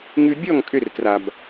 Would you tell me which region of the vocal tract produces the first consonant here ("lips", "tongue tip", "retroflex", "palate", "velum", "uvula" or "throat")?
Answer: velum